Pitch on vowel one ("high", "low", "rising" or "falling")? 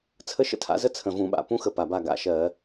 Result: high